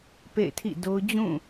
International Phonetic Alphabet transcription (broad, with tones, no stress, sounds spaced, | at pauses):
p ḛ˦˨ ɪ̯ tʰ ḭ˦˨ d o˦ ʊ̯ d͡ʑ ũ˦˨